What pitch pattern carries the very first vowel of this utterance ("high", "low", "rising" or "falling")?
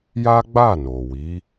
high